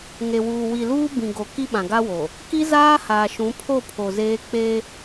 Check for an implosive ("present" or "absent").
present